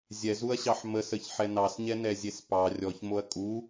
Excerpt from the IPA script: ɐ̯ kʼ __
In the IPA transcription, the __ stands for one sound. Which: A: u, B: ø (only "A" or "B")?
A